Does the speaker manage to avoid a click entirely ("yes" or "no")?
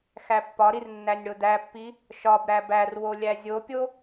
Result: yes